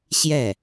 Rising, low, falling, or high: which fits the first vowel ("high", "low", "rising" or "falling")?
falling